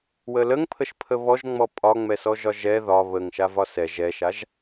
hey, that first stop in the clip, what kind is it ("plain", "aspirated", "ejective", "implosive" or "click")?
aspirated